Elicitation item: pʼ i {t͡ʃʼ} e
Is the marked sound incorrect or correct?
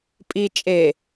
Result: correct